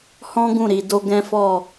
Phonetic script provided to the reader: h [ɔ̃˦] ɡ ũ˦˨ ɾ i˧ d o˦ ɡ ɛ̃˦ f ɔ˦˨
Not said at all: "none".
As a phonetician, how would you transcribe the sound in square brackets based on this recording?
ɔ̃˦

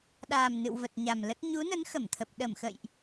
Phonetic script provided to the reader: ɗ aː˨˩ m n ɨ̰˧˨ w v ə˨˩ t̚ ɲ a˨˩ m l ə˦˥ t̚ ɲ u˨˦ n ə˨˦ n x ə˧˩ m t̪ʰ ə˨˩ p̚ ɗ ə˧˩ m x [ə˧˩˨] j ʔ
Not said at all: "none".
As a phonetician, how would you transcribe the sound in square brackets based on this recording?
ə̰˧˨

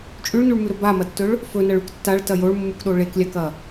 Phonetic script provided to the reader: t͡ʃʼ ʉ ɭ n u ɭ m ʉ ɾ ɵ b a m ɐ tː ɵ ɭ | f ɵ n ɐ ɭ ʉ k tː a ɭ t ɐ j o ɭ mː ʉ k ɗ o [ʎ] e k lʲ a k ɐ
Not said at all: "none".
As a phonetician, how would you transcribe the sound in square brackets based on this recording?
ɭ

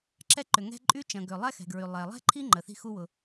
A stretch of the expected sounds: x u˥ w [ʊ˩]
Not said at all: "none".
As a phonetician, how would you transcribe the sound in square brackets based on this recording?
ʊ˩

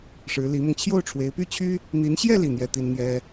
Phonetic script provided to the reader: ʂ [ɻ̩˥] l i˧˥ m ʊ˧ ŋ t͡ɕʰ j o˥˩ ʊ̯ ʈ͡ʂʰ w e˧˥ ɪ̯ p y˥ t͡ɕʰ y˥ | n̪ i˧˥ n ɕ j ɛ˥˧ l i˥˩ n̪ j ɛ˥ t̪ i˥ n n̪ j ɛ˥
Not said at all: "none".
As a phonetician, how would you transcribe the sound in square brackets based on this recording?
ɻ̩˧˥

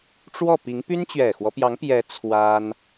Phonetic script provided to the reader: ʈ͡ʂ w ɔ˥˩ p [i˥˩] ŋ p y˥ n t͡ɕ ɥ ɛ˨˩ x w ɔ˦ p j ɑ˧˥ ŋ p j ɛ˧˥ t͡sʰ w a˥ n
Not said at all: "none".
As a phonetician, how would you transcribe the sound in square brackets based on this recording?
i˧˥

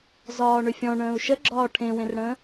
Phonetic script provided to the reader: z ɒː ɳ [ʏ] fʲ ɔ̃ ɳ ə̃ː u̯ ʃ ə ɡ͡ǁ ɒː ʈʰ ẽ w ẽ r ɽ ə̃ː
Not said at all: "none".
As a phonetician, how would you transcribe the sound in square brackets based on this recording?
ʏ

